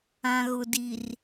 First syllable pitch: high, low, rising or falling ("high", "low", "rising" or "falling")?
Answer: low